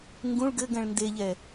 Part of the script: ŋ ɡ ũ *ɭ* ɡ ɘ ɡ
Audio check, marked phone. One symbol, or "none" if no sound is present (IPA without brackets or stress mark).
ɭ